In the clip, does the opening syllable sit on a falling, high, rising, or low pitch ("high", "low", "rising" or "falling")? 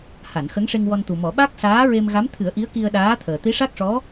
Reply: low